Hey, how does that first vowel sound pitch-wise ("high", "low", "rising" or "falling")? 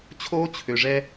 high